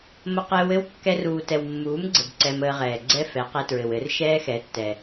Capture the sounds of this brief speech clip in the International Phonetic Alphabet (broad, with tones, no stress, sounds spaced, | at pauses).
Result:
m ə˧ q ɘː˧ w ɘ˦ w kː ɛ˧ r uː˨ t ɛ˨ w mː uː˨˦ m ɡ͡ǀ ə˨ b ǀ ɛ˧ m əː˧ ʁ ɛː˨ ɡ͡ǀ ɛ˦ f ɛ˨˦ q e˧ t ɹ ɘ˨ w ɘ˨˦ r ʃ ɛː˦ x ɛ˨˦ tː ɛ˨